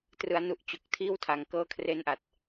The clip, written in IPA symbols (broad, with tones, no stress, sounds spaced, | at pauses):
t r ɯ˩˦ a̯ n u˨˩ ʔ t͡ɕ o˨˩ k̚ tʰ iː˥˩ w tʰ a˨˩ ŋ k ɤː˦˥ kʰ r e˦˥ n ʔ a˨˩ t̚